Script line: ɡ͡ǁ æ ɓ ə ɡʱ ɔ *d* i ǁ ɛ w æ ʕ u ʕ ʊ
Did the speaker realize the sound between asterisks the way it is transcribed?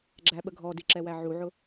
yes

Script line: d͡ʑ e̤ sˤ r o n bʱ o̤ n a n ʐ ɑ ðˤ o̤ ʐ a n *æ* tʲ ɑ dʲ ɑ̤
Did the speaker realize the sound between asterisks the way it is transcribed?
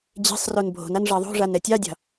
no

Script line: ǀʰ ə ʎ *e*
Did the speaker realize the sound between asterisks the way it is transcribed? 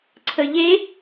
yes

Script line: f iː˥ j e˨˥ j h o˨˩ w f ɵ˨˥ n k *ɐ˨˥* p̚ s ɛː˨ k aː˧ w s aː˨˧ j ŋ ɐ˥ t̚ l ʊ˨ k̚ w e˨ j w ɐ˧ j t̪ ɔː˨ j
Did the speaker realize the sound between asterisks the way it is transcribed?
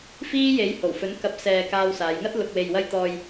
yes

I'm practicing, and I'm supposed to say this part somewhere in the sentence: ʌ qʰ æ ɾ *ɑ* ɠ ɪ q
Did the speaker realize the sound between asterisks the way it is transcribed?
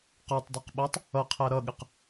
no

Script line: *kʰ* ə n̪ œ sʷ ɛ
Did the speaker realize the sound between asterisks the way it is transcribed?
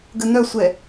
no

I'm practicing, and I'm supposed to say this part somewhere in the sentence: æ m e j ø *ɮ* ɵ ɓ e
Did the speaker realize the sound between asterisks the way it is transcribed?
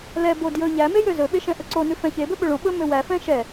no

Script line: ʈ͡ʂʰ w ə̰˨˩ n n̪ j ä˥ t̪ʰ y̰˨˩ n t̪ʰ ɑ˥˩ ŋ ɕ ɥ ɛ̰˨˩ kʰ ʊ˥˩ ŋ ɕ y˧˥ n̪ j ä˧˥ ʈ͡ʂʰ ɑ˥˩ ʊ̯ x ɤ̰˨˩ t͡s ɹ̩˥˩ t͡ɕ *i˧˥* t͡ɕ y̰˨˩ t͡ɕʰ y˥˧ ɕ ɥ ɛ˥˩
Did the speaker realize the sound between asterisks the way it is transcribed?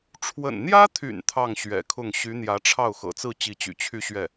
yes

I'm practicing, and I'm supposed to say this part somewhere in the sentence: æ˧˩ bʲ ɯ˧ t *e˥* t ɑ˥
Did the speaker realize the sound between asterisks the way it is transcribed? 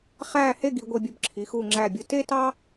yes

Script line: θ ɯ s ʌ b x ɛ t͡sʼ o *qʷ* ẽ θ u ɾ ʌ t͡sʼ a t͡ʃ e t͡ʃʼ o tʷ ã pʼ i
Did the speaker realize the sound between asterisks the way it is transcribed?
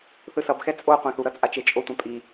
yes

